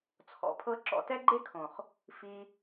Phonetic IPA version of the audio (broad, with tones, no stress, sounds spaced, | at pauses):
t͡sʰ ɔ̰˨ pʰ ɤ˧ ǁ ɔ̰˧ t ɛ˦ ɡ͡ǃ e˦ kʰ õ˨ χ | f i˧